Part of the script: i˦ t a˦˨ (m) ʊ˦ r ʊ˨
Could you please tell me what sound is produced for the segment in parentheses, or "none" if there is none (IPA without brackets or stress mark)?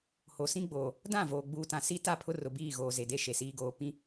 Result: pʰ